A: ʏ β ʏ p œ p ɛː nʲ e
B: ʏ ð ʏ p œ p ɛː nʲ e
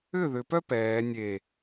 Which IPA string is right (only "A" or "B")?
B